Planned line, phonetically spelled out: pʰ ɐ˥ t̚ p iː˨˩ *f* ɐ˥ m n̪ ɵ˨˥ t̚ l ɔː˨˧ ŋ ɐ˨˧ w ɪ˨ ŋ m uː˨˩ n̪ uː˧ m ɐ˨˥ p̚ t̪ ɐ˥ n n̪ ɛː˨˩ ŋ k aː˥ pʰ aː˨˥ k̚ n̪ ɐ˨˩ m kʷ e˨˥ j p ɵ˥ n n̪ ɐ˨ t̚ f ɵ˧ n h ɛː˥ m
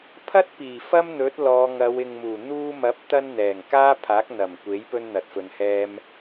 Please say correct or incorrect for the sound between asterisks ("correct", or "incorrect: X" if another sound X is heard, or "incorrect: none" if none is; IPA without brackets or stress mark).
correct